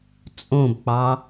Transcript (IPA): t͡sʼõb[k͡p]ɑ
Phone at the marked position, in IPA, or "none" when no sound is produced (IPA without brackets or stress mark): k͡p